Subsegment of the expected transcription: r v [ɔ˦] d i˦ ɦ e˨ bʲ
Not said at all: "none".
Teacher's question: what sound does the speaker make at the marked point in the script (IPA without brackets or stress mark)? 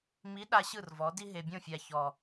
ɔ˨˦